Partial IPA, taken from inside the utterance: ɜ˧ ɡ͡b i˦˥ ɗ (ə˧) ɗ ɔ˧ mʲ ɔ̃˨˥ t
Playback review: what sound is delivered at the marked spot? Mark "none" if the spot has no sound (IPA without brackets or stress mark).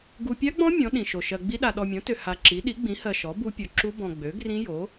a˧